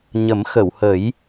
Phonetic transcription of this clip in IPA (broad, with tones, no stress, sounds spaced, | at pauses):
ɲ ə˨˩˦ m x ə˨˩˨ w h ə˨˩˦ j